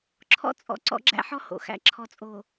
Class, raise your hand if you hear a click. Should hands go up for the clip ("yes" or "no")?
yes